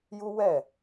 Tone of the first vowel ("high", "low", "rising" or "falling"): high